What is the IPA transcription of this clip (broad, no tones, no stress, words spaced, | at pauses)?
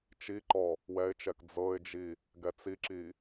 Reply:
t͡ʃiǃɔ | wɛɪ̯t͡ʃɛk d͡zɤɪ̯d͡ʒi | ɡɛt͡siǁi